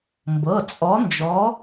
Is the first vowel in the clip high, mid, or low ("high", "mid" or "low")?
mid